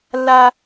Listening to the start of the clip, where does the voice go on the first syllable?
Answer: high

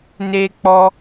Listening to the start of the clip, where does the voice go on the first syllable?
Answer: high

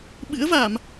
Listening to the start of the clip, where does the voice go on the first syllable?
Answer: rising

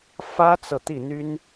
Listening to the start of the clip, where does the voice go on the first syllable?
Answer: high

